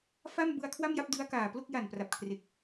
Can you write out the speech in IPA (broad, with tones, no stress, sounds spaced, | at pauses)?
f a˥˩ m b ɯ˧ a̯ kʰ w a˥˩ m j a˥˩ p̚ d ɯ˦˥ a̯ k aː˨˩ p l o˥˩ k̚ j a˨˩ n p r a˨˩ p̚ kʰ r e˨˩ k̚